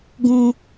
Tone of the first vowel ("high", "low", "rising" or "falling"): low